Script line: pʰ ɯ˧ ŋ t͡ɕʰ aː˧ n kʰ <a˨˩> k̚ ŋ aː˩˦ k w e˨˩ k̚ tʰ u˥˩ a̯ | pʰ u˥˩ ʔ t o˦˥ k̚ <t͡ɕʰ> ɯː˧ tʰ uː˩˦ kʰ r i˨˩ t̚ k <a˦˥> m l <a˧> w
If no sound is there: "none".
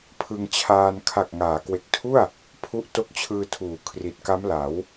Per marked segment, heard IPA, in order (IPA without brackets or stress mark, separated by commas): a˨˩, t͡ɕʰ, a˦˥, a˩˦